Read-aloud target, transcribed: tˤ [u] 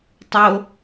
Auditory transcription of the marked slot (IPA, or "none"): o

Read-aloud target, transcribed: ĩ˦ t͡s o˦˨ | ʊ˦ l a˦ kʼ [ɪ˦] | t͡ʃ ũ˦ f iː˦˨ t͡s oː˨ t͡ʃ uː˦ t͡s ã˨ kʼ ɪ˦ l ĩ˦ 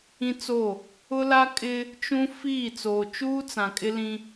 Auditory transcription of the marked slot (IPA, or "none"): ɪ˦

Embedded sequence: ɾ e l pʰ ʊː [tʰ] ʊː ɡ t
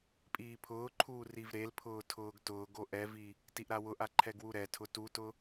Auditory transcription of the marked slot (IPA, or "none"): tʰ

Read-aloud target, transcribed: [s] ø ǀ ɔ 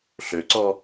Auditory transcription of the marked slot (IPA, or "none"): ɬ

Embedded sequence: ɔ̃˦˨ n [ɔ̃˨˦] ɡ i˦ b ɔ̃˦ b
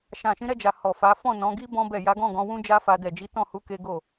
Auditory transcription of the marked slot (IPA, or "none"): ɔ̃˨˦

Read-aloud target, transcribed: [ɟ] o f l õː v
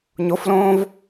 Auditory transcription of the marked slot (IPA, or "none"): ɲ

